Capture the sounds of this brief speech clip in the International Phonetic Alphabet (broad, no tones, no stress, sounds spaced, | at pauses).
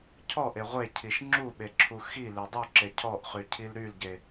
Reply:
cʰ ɔ ʔ e ʁʷ e cʰ i ʃ ŋ͡ǁ u ɓ e ǁʰ u x i l e dˤ u ǁ e cʰ ɔ ʔ χ y cʰ i l ɾ y l ɟ e